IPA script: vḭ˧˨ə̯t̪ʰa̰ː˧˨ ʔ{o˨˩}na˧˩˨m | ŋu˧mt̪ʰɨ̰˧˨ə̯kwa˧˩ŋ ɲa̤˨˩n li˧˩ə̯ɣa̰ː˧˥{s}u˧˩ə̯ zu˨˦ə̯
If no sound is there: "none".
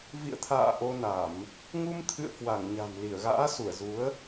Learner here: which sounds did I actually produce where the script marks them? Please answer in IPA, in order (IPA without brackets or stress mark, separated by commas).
o˧, s